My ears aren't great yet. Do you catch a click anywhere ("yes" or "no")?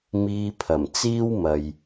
no